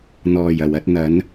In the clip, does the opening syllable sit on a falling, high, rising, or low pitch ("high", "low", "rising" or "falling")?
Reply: low